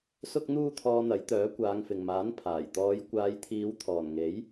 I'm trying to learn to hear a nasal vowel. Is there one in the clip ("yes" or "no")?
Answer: no